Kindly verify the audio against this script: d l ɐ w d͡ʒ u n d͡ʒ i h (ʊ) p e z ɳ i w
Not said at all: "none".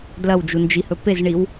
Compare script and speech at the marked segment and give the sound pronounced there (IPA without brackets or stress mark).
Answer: ɵ